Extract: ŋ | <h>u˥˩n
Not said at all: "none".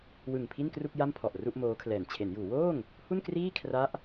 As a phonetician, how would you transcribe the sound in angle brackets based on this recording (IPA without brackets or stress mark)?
h